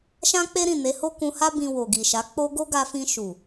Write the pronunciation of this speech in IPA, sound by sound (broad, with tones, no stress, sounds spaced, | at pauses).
ʃ ã˦ k͡p e˦ ɾ ĩ˦˨ n e˨˦ h o˦ k ũ˧ h a˦ b ĩ˧ w o˨ ɡ i˨ ʃ a˨˦ k͡p o˦ ɡ o˦ ɡ a˧ f ĩ˧ ʃ u˨